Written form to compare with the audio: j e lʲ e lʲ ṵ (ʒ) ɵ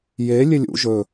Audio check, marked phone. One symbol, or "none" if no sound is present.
ʒ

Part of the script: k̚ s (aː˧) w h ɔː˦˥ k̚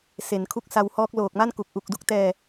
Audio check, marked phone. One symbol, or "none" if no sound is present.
a˧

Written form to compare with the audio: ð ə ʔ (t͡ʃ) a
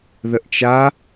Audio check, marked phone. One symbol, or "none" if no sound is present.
t͡ʃ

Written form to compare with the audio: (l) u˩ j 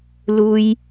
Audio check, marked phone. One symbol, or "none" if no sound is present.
l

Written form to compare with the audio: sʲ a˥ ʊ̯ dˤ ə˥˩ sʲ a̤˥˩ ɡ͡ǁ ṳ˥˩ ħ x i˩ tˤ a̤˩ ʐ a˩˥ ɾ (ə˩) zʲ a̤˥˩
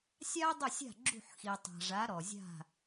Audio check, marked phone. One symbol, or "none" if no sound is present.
ɔ˩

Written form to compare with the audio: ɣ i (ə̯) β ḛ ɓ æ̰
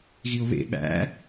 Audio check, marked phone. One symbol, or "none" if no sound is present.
ʊ̯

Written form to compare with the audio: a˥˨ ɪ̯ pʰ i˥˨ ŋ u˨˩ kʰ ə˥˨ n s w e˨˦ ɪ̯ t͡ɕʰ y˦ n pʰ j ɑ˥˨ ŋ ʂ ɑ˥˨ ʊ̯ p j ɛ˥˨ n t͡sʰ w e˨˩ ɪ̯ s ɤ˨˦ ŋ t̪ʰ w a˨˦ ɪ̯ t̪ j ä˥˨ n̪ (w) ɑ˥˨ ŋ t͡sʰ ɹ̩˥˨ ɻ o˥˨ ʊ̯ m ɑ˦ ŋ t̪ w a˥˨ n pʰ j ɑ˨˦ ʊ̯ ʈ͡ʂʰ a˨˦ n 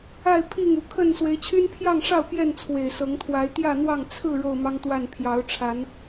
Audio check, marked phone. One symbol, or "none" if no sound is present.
w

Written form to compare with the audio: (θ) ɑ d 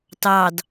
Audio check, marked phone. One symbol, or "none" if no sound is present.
t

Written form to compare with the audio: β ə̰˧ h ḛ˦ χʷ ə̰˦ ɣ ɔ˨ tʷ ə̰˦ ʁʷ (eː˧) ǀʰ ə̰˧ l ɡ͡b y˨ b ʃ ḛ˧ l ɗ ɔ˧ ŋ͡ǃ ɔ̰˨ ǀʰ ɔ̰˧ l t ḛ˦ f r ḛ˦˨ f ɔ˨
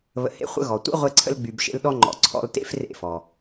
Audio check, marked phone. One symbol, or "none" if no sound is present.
e˧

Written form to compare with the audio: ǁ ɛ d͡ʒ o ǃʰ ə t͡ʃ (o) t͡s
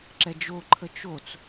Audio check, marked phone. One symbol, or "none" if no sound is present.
o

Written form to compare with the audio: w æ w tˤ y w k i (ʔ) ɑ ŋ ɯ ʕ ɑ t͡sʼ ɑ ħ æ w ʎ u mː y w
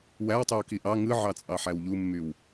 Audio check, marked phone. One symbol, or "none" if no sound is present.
ʔ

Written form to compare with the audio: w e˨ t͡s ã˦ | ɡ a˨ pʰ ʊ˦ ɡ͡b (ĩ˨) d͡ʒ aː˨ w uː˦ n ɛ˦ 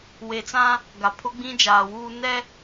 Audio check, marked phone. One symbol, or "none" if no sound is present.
ĩ˦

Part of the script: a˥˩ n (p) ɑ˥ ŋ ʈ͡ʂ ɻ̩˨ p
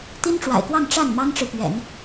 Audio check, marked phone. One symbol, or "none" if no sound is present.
m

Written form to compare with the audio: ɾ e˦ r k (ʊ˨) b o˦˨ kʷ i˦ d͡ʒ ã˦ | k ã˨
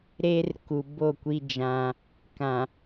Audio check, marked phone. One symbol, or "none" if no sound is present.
u˨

